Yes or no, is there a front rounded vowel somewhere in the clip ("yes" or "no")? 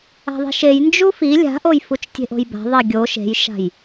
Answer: no